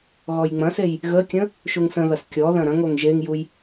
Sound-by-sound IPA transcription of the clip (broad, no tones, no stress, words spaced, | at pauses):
ɣɔjŋ͡mɐ̃sej | ɣəkʲə̃ | ʃuŋsə̃ðɐs kʲɔðɐ̃ ɾɐ̃ŋoŋ ʒeŋjuj